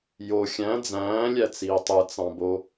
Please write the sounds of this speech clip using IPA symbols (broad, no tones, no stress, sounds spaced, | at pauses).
j o xʲ æ̃ d͡z æ̃ː lʲ æ t͡s iː tˤ ɯ t͡s ɑ̃ b o